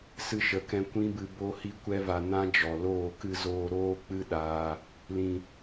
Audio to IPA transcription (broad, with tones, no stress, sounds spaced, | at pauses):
s ɨ˧ ʃ ə˨ k ɛ̃˧ kʷ ĩ˦ b ɨ˧ b o˧ h i˦ kʷ ɛ˦ v a˧ n ã˦ d͡ʒ ɔ˨ l oː˦˨ k ɨ˧ z oː˧ ɾ oː˦ k͡p ɨ˦ ɗ aː˧ | l ĩ˨